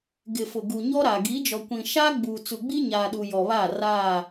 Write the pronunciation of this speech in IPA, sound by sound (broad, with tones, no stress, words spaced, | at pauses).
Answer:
ɡɪ˨fʊ˨ ɡu˨ɲɔ˦ɾa˨ ɡi˨˦d͡ʒɔ˨kʷĩ˨ ʃaː˦ɡ͡buː˨ t͡su˨ɡ͡bi˦ɲaː˨ɗu˨ jɔ˨βaː˦˨ raː˦˨